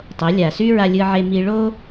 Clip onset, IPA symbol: tˤ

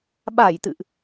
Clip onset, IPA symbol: ɓ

